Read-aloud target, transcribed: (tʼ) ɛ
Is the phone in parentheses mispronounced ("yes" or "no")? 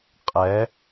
yes